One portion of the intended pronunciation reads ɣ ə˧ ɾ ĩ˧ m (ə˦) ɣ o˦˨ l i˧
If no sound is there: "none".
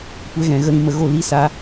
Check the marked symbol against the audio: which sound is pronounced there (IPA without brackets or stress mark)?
ə˧